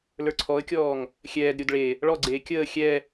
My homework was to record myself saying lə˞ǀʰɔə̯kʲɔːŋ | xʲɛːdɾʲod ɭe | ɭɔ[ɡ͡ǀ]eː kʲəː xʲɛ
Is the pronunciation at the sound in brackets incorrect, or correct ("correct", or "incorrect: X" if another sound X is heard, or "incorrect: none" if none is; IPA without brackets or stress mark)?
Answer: correct